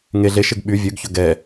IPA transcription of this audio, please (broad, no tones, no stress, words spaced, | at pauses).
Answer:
ŋe ɮeʃeɡ ɓy vʲøɡçɵ ɡɛ